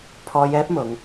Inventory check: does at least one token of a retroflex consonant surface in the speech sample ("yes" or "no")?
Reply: no